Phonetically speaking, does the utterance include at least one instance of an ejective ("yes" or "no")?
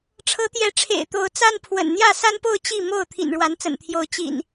no